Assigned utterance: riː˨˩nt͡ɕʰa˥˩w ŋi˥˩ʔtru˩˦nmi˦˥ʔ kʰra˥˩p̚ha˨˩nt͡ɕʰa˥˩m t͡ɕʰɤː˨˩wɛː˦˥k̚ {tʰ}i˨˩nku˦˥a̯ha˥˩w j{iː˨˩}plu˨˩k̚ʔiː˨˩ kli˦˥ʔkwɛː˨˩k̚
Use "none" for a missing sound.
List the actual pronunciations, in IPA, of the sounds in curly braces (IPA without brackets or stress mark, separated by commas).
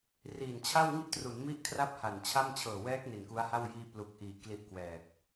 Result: n, iː˧